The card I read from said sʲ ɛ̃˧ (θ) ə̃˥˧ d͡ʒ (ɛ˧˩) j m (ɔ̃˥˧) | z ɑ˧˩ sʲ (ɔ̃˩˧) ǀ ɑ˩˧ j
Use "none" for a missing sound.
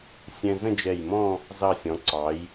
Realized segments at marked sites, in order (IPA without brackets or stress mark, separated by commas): z, ɛ˧˩, ɔ̃˥˧, ɔ̃˩˧